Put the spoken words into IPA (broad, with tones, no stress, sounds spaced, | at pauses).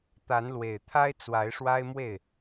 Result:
t̪ a˨˦ n l w e˨˩ ɪ̯ t̪ʰ a˦ ɪ̯ t͡s w a˨˦ ɪ̯ ʂ w a˦ ɪ̯ m w e˥˨ ɪ̯